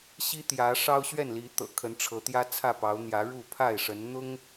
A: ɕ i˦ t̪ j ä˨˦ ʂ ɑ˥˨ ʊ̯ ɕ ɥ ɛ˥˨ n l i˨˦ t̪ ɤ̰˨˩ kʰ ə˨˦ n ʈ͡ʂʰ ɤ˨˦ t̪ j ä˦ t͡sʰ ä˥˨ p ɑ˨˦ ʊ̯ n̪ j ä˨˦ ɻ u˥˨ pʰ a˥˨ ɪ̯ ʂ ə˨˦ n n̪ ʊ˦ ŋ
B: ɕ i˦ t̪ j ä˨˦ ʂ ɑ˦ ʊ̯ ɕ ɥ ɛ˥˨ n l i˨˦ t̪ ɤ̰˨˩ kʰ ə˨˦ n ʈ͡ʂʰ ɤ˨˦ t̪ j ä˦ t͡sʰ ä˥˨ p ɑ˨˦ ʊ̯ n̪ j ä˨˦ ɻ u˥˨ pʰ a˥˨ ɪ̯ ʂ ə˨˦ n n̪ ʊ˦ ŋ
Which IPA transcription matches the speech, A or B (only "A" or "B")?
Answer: B